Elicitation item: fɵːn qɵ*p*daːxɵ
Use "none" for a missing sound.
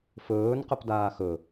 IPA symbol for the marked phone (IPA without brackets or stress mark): p